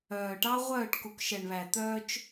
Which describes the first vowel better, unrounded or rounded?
rounded